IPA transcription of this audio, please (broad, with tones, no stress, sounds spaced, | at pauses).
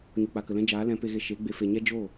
ɲ u˨ k͡p a˨ k ə˨ l ɛ̃˦ d͡ʒ aː˨˦ l ɛ̃˨˦ p e˧ ɣ e˧ ʃ e˨˦ ɡ͡b e˨ f e˨ ɲ ɛ˦ d͡ʒ oː˦˨